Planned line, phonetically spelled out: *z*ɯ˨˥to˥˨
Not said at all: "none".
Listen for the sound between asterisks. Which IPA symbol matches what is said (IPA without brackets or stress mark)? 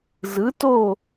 z